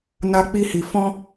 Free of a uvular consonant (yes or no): yes